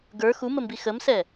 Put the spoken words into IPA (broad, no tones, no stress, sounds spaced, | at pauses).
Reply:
ɡ ə˞ x u m ə m b i x ə m s ɛ